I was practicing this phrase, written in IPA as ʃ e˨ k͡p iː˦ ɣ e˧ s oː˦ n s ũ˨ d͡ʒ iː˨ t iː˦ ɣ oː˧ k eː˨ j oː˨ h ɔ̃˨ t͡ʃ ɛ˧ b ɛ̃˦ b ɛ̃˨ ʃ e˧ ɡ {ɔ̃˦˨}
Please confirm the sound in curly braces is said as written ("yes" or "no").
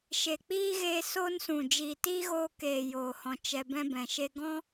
no